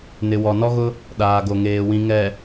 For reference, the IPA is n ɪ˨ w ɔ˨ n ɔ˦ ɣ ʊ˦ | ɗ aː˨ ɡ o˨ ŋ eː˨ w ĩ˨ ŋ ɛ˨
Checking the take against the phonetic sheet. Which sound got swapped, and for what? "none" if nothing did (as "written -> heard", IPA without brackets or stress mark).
none